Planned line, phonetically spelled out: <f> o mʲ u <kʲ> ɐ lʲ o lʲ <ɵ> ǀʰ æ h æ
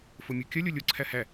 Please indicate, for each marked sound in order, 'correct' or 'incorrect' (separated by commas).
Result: correct, correct, incorrect